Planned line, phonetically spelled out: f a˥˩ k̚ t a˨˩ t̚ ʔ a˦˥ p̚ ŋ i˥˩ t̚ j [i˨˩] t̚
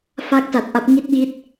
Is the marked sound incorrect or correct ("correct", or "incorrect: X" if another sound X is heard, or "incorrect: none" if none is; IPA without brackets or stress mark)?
incorrect: i˥˩